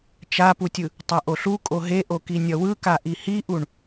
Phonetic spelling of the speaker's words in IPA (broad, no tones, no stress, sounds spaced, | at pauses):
t͡ʃ a p u tʲ ɯ | tˤ a ʔ o ɬ u kʼ o ɦ e ʔ o k i nʲ ʌ w ɯ k a ʔ i h i ʔ u ɳ